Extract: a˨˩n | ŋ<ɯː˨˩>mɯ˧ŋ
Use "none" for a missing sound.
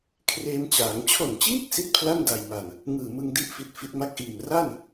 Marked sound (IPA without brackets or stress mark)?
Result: ɯː˨˩